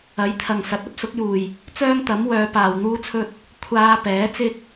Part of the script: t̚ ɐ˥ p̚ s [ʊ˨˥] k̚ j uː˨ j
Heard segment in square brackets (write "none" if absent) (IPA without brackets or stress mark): ʊ˨˥